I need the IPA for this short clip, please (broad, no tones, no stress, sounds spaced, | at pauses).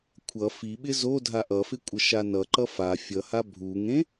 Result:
kʷʰ ʌ f i ɓ ɪ z o dʱ a ʔ ʌ f ɪ kʷʼ ə ʃ a n ʌ ǃ ʌ f a fʲ ʌ h a bʱ u ŋ ẽ